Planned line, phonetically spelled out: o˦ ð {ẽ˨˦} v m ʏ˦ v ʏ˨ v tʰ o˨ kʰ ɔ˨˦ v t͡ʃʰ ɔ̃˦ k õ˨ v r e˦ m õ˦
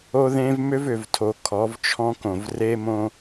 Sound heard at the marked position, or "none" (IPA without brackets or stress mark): ẽ˦